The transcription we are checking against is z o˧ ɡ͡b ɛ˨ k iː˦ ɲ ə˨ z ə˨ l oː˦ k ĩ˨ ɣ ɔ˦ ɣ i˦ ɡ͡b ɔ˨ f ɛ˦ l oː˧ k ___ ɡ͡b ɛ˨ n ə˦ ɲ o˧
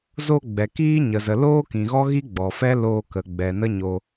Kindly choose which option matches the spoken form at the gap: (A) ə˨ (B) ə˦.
A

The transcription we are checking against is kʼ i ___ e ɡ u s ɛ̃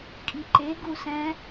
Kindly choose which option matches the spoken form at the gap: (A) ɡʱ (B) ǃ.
B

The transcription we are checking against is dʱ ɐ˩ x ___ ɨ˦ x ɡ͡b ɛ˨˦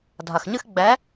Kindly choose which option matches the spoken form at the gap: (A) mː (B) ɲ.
B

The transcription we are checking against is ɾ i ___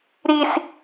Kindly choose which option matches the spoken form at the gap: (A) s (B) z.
A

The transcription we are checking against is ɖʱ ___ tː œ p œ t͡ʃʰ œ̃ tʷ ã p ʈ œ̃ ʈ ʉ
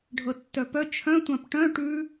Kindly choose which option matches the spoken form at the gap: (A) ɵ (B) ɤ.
B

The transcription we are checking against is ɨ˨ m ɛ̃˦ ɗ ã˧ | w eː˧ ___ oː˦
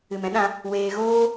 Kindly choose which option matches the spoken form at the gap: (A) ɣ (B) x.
A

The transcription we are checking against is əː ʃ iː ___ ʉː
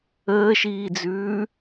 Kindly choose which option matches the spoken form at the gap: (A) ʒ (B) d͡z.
B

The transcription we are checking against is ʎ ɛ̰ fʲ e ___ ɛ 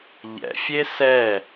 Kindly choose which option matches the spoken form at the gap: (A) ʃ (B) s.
B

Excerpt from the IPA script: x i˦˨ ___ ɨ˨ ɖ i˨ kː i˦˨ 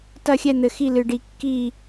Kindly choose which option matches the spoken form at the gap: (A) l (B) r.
A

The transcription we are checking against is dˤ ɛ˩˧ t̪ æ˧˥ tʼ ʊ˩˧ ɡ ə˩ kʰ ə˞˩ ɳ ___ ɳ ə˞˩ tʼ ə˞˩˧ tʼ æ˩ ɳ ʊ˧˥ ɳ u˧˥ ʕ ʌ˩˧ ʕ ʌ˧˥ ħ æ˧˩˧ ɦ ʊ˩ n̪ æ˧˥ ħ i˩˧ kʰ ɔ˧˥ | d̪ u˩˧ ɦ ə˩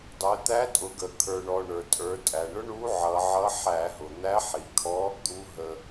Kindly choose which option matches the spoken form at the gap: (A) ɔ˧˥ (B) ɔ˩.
B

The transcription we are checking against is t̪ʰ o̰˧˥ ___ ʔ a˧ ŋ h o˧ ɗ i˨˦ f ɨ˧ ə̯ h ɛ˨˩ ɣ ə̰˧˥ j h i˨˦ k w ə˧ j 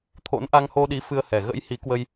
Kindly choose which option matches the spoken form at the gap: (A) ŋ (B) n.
B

